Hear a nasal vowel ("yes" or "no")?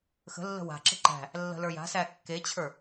no